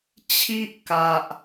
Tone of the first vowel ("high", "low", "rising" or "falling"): high